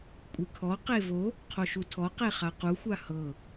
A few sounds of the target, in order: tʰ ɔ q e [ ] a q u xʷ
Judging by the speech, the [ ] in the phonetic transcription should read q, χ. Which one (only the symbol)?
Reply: χ